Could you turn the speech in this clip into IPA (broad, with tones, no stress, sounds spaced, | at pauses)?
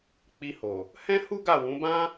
k͡p i˧ h o˨ | h ɛ̃˦ h u˦ ɡ a˦˨ w ũ˨˦ b ã˦